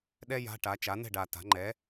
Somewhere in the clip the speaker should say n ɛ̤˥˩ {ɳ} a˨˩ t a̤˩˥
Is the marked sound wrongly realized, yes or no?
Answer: yes